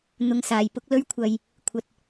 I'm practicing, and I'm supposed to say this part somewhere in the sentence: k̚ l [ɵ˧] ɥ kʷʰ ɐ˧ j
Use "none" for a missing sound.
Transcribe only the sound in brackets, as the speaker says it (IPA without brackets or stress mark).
ɵ˥